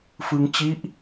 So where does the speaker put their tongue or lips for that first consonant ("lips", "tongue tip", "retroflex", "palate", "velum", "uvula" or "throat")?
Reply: lips